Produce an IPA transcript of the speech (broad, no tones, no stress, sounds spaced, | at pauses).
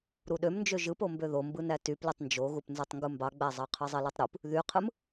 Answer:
ɾ u ɗ ø m n d͡ʒ ø ʒ ɯ p o m b ø ð o m b ɯ n æ t y p l y tˤ n d͡ʒ o ɣ u p n z ø tˤ ŋ ɡ u m b ɑ ɡ͡b æ zˤ ɑ qʰ ɯ zˤ e l ɯ tˤ ɾ u p | ð y qʰ ɯ m